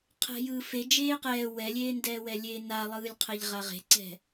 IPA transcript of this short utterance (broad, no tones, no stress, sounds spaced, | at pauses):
qʰ ɛ̤ j ɯː f e d͡ʒ eː q ɛː w ɛ lʲ eː n d ɛː w ɛ lʲ eː n a lˠ ɯː lʲ qʰ ɛ ʎ ʁ a ʁ e̤ ǀ ɛ̤